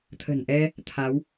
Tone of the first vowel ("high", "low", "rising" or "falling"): low